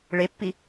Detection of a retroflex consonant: present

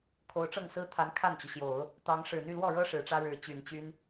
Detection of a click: absent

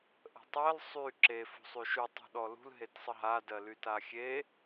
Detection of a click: present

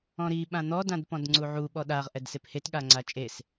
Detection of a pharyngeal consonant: present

